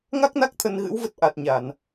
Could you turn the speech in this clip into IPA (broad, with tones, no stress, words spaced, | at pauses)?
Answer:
ŋa˦˥k̚na˦˥k̚ t̪ʰə˧nɣɨ̰˧˥wvə˦˥t̚ ʔa˨˩t̚ɲa˧˩˨n